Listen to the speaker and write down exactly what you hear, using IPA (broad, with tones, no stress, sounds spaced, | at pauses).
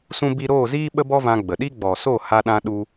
s ũ˦ b i˦ ɾ oː˦˨ z iː˦ ɓ ə˦ b ɔ˦ v ã˧ ɡ͡b ə˨ ɗ i˦ ɡ͡b ɔ˨ s o˦˨ h a˧ ɗ ã˧ ɗ u˧